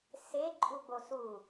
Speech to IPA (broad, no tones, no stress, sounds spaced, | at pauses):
s e ǃʼ u ɡ͡b o s u